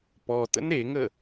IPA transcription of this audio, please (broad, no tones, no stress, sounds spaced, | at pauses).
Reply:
p ɔ t ə̰ n ɾ e ŋ ə